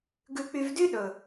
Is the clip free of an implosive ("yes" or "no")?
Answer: no